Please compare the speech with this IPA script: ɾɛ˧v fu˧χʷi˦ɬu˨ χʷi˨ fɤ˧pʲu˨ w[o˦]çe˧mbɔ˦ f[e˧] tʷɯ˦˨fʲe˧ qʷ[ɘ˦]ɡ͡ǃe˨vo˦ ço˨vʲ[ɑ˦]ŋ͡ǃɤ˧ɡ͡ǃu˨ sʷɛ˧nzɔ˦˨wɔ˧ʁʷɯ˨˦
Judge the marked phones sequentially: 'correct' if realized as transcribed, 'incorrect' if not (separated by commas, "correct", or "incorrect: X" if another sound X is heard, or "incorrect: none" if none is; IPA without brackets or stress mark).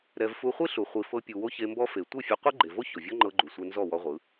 correct, incorrect: e˨, incorrect: ɛ˦, incorrect: ɔ˦